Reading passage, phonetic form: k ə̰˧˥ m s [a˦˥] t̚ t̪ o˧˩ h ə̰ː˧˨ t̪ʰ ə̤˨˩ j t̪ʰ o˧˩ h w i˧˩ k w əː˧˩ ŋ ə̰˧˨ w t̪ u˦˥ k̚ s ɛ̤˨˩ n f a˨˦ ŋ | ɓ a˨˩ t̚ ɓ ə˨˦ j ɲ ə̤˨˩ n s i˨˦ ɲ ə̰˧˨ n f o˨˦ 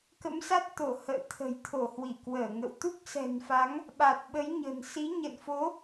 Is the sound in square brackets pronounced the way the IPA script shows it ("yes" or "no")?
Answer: yes